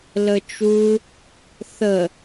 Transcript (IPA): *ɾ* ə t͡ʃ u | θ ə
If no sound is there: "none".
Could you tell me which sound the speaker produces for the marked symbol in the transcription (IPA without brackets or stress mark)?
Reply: l